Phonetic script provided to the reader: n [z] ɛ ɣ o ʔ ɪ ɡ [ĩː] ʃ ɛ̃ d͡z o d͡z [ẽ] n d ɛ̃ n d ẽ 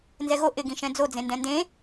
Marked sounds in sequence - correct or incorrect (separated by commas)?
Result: correct, incorrect, correct